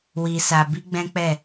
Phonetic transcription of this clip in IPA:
w i˧ s a˧ b i˦ ɡ͡b ɛ̃˦ k͡p ɛ˦˨

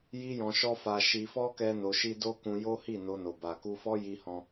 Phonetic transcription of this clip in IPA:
j i˦ j ɔ̃˧ ʃ ɔ˦ f a˧ ʃ i˧ f ɔ˦ k ɛ˦ n o˧ ʃ i˦ d o˦ k ũ˧ j o˦ h i˦˨ n o˧ n o˨ b a˨ k u˧ f ɔ˦ j i˧ h ɔ̃˧

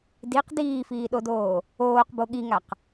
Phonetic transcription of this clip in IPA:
d i q d iː f iː ɗ o d oː | oː q b o ɠ i ŋ a q

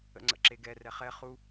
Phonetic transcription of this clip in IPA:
ə̰ ŋ͡ǀ ə̰ ǁ e ɡ ɛ r ɛ χ ɛ χ u

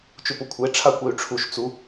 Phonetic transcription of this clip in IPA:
t͡ʃ u p ʊ kʷʰ e ʈ͡ʂʰ a kʷ ɛ y̯ ʈ͡ʂʰ u ʃ t͡s u

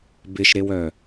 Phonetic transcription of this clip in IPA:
b ɪ ʃ ɾ e w œ

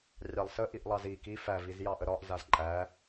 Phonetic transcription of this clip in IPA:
rʲ ɑ lˠ s ə ʔ i ʔ lˠ ɑ z i k i f æ v i z j ɑ ʔ ə ɾ ɒ ʔ z a z ǃʼ æ

